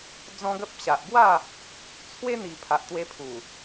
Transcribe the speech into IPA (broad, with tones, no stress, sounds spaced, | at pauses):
d͡z ɔ̃˦ ɡ ə˦ p̚ ɕ a˨ ʔ b w a˥˧ | t͡sʰ w e˦ n̪ i˨˩ pʰ a˨ ʔ t̪ w e˧ pʰ u˨˩